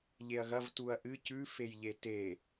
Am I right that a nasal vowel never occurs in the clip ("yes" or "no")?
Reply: yes